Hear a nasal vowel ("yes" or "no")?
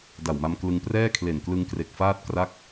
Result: no